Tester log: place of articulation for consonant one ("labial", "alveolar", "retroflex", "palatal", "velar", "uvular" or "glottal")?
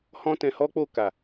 glottal